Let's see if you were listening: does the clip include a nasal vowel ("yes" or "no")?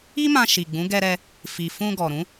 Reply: yes